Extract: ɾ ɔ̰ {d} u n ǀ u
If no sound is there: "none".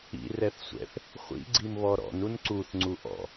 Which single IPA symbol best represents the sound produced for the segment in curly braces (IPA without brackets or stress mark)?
n